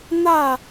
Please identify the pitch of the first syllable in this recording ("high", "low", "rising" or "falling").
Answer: falling